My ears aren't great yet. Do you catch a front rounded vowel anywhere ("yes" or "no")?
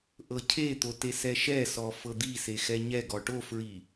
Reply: no